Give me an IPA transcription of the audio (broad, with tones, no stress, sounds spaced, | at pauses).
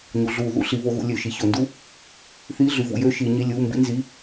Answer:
ɲ u˩˧ ɮ uː˧˩˧ ð ṵ˧ ɬ i˩˧ β o˧ ɣ ṵ˧ lʲ ø˧˩˧ ʃ i˧ ç o˧˩˧ n d u˥ | θ iː˧˥˧ ɮ y˩˧ v ṵ˩˧ j ø˧˥˧ ʃ iː˧ ɲ i˧˥˧ lʲ uː˧˥˧ m b ḭ˥ n z i˧˥˧